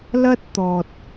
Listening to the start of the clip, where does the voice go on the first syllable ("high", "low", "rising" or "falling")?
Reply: high